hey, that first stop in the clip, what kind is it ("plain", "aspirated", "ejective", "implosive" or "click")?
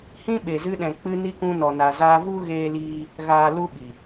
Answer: implosive